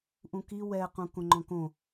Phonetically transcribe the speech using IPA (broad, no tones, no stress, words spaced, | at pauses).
ʔũki wɛqũ kõŋ͡ǃɔ̃kõ